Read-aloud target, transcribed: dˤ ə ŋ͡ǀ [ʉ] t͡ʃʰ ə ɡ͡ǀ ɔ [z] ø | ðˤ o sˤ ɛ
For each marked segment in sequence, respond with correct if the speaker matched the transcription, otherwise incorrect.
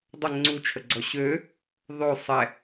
incorrect: u, incorrect: ɕ

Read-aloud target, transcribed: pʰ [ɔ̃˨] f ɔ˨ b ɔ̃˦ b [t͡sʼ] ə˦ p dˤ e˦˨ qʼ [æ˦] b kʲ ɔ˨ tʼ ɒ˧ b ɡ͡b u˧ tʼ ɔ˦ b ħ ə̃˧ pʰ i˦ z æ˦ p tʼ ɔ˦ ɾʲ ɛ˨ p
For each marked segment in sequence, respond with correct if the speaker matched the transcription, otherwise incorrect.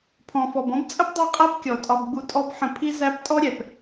correct, correct, correct

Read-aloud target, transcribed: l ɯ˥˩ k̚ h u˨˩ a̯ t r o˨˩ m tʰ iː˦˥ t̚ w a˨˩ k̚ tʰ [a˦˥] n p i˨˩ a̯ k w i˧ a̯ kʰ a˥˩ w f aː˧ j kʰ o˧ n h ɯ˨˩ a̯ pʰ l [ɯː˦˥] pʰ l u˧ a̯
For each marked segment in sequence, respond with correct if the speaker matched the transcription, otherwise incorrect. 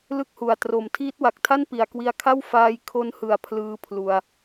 incorrect: a˥˩, correct

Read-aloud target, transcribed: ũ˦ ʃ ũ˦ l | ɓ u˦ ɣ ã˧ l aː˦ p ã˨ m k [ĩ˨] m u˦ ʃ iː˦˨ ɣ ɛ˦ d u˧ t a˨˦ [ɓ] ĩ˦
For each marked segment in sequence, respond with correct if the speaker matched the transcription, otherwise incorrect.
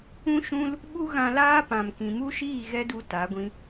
correct, incorrect: ɡʷ

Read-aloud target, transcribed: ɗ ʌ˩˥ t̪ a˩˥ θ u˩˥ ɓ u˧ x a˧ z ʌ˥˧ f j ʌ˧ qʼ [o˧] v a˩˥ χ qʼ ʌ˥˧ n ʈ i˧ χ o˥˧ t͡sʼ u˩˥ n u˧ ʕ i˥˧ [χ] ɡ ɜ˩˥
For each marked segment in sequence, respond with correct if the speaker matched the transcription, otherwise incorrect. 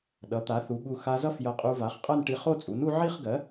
incorrect: u˧, correct

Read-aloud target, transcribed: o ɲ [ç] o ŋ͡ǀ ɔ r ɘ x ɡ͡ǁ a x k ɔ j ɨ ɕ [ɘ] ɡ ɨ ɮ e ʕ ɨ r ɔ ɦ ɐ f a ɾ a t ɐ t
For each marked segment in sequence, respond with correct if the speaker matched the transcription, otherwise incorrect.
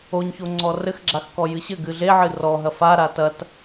correct, correct

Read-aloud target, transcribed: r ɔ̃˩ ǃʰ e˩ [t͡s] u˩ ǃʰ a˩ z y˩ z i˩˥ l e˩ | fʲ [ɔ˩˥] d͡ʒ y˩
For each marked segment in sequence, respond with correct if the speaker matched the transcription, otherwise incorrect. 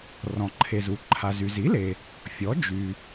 incorrect: z, correct

